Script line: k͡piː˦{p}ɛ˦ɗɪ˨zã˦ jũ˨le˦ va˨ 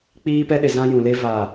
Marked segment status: correct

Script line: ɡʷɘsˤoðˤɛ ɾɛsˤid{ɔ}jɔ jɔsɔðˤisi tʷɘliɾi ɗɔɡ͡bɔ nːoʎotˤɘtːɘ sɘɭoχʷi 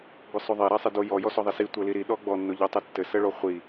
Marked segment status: incorrect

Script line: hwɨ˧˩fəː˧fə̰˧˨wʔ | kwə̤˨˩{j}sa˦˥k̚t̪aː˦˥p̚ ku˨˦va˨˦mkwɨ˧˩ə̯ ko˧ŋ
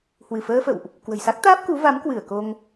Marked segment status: correct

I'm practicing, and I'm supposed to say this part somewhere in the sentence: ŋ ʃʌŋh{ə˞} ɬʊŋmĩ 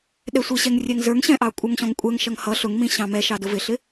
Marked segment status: incorrect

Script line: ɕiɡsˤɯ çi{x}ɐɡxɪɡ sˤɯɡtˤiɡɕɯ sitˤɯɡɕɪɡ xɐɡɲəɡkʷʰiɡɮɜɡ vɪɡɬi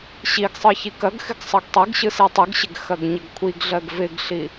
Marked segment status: incorrect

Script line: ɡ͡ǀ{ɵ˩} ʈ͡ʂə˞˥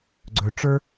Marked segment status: correct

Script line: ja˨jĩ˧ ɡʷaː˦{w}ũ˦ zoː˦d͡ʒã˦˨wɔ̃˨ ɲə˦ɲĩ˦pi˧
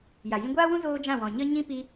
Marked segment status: correct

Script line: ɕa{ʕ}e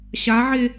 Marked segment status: correct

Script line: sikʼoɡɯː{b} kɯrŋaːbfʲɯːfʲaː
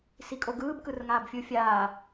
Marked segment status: correct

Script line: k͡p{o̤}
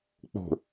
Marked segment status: correct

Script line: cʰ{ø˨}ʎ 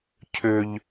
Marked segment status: correct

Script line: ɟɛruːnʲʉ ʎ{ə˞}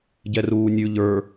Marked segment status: correct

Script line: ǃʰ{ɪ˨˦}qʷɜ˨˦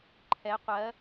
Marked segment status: incorrect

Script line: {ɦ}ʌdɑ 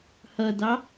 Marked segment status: incorrect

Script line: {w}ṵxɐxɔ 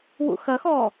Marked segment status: correct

